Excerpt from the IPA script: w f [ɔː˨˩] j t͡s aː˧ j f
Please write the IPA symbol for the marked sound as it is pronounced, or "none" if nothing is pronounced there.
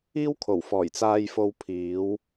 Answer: ɔː˨˩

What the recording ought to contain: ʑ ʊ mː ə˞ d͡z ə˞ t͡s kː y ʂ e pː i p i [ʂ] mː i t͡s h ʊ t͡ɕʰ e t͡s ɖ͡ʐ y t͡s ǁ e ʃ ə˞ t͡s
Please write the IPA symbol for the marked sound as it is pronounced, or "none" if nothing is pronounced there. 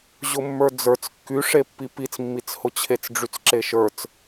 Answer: t͡s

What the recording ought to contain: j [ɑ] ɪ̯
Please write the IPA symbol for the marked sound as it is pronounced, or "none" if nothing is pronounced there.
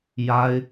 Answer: a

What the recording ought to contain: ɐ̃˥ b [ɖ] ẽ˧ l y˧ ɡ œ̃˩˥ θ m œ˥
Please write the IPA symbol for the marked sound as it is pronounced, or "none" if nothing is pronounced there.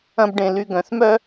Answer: ɖ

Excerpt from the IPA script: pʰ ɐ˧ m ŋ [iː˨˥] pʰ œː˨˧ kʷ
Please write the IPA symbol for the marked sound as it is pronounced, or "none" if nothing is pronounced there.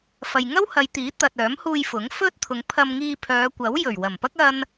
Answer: iː˧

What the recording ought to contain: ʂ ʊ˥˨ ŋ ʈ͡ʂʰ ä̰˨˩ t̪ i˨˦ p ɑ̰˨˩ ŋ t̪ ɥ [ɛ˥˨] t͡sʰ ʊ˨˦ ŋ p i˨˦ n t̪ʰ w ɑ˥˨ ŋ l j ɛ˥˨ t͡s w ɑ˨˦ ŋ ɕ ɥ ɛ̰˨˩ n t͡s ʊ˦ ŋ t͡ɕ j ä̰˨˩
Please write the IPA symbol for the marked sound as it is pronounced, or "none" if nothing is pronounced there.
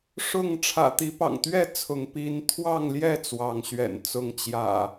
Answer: ɛ˥˨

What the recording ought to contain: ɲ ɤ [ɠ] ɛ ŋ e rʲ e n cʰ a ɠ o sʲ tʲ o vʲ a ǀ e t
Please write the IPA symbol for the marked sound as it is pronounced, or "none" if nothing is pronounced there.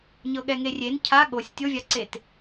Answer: ɠ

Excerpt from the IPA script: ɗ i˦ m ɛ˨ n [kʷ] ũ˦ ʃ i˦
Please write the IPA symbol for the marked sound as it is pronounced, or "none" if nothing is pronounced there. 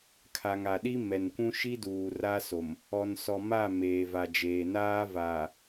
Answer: kʷ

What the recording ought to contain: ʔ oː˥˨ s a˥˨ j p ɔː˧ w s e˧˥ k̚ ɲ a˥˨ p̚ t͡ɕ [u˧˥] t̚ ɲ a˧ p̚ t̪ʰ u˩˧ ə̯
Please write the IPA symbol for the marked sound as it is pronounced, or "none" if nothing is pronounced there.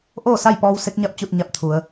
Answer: u˥˨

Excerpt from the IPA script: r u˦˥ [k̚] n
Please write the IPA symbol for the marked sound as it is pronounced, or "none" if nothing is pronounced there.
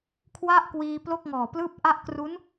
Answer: none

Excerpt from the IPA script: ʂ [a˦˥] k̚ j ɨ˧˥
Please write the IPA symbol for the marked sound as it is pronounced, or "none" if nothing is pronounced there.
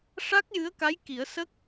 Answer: a˦˥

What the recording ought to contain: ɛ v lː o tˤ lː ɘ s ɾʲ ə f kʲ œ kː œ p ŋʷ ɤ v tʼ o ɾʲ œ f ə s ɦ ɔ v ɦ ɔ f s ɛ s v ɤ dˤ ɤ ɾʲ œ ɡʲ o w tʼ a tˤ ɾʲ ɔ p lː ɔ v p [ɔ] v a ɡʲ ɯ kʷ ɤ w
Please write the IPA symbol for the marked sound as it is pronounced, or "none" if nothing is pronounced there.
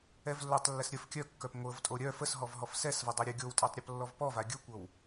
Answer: ɔ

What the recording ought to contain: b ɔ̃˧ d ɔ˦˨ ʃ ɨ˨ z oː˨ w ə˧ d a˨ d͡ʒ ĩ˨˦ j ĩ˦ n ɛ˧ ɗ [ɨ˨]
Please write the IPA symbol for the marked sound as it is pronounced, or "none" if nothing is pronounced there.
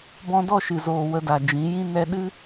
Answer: ɨ˦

